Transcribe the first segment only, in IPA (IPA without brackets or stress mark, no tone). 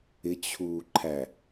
ɪ